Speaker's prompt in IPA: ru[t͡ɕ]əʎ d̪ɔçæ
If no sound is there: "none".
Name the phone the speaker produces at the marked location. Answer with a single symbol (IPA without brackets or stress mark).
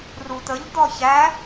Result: t̪